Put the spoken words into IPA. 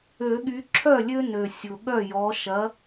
ø˨˩˦ ɠ y˨˦ ǁʰ œ˥˩ lʲ ø˦ n ø˨˩ sʲ ʊ˨˩ ɠ œ˥˩ j ɔ˨˦ ʃ ɐ˨˦

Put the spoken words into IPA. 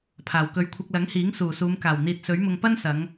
pʰ aː˨˩ w k ɵ˨ ɥ kʷʰ ɐ˧ k̚ l ɐ˨˥ ŋ h iː˨˥ ŋ s uː˨˩ s uː˨˧ m k aː˨˩ w n̪ iː˨ t̚ s ɵ˨˥ ɥ m ʊ˧ ŋ p ɐ˥ n s ɐ˨˧ ŋ

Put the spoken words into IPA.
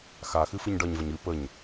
x a x ɨ f ɨ ɲ ɖ ʌ ɲ v ə ɲ ɨ p ə ɲ

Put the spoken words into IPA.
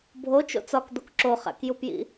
bʱ o t͡ʃ o̰ t͡s ɒ k d̪ o k ǁ o χ æ̰ k j u p j ḭ

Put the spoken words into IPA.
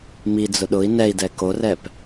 m i d͡z ʊ ɗ ʊ i̯ n ɛ i̯ d ɛ k o r ɛ p

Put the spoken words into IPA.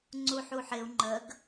ŋ͡ǀ u ħ u ħ ɪ u̯ ŋ͡ǃ ə ɡ

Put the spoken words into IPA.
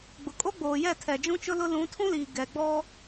ɡ͡b ʊ˨ kʼ o˦ ɡ͡b oː˨ j ɛ˦˨ tʰ ɛ˨ d͡ʒ ũ˦ t͡ʃ ʊ˦ l ʊ˦ l ũ˨˦ tʰ ũ˦ l iː˨ ɡ ɛ˨ ɡ͡b ɔ˦

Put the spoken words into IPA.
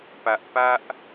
p ä˦ ʔ p ä˦ ʔ

